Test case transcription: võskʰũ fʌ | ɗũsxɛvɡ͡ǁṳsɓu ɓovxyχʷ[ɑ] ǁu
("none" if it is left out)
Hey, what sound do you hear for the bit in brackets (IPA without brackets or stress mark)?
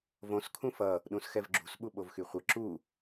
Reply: ʌ